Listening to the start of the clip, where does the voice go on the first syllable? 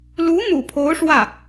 rising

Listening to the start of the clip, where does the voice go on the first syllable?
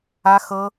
high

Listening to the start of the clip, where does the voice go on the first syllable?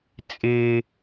high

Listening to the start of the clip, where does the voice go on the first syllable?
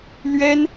high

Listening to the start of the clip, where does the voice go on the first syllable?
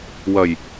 low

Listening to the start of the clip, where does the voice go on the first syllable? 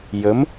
rising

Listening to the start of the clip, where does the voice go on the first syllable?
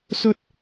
high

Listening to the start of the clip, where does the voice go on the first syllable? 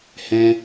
high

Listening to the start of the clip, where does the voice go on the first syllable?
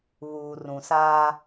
low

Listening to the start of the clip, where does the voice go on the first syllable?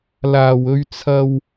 low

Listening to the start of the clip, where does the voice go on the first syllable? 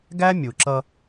high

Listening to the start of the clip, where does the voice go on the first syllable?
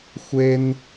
high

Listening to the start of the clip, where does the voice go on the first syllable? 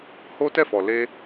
high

